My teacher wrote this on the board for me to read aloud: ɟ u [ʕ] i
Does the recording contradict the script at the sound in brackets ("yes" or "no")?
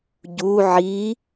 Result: no